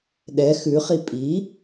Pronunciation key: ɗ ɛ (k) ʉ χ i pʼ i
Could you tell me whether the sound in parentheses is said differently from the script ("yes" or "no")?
yes